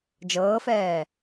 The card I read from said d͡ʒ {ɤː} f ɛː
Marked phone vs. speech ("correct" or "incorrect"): correct